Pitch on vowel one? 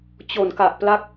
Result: low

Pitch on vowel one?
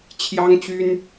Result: high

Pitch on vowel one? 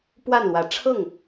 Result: falling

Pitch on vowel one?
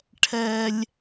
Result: high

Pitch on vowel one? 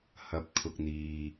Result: low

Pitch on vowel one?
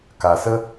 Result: low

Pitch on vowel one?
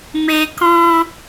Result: low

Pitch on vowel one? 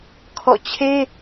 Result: falling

